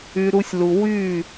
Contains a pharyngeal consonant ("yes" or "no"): no